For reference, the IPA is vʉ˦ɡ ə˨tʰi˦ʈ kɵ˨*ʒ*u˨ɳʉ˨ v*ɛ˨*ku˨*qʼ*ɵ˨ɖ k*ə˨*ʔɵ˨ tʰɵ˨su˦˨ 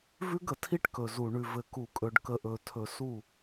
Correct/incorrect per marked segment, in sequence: incorrect, incorrect, incorrect, correct

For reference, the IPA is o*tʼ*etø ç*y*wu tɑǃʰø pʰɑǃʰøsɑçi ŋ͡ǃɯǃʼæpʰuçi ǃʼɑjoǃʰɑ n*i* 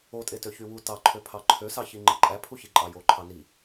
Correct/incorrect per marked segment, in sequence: correct, correct, correct

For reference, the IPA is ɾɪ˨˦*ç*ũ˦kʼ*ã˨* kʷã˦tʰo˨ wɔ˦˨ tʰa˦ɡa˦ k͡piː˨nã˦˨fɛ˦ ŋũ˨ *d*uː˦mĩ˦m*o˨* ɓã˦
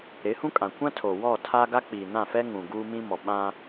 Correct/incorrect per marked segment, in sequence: incorrect, correct, incorrect, incorrect

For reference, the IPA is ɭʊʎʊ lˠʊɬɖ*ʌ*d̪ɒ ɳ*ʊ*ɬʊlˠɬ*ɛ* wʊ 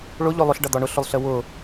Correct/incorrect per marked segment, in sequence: correct, correct, incorrect

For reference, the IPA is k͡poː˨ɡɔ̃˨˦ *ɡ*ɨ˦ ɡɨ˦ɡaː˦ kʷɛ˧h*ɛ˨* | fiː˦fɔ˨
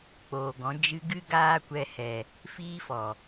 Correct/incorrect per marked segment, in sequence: incorrect, correct

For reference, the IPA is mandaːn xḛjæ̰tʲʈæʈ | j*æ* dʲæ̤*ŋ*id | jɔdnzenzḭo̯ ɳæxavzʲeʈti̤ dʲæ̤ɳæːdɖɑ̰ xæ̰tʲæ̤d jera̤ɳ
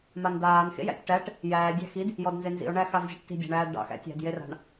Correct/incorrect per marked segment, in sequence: incorrect, incorrect

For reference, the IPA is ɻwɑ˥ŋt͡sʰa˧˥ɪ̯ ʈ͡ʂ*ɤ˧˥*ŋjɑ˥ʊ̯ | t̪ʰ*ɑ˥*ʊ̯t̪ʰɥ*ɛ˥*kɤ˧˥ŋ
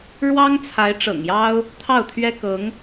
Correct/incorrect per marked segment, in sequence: incorrect, incorrect, correct

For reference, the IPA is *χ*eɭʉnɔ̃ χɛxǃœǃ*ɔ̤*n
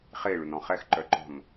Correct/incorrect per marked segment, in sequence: correct, correct

